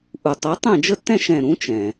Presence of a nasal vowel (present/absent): present